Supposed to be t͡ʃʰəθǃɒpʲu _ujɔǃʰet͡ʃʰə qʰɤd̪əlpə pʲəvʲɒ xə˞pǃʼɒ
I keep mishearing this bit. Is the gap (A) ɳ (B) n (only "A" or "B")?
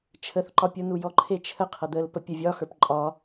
B